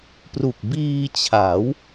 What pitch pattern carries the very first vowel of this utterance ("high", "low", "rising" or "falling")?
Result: low